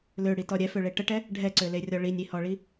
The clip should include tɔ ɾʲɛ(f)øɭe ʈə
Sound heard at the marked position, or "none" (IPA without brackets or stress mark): f